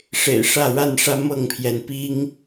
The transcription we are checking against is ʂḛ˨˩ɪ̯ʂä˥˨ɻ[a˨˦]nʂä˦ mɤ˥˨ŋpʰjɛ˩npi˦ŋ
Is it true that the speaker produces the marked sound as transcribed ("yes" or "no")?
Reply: no